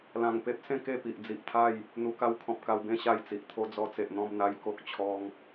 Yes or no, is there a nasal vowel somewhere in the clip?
yes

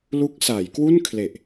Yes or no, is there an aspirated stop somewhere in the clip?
yes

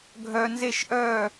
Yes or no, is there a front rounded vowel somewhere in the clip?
yes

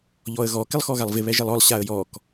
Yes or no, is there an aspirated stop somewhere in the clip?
no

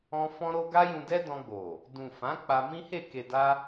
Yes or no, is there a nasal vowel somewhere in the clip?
yes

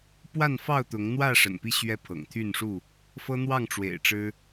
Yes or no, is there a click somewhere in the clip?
no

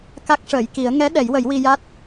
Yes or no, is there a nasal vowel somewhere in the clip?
no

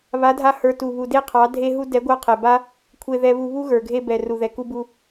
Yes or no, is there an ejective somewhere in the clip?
no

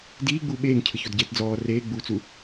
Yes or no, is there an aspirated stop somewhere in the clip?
yes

